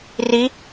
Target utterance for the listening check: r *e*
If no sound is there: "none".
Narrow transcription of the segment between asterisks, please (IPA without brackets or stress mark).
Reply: i